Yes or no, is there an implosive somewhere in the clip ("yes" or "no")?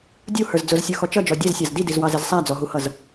no